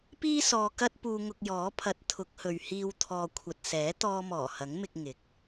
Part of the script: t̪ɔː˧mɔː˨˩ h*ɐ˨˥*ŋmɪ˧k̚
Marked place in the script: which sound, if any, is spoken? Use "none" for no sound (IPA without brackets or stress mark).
ɐ˨˥